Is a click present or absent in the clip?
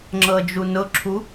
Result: present